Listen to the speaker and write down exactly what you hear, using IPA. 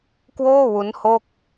k w oː˥˩ w u˦˥ n h o˥˩ k̚

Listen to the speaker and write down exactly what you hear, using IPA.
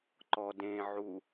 ǃ ɔ d ẽ ʕ u

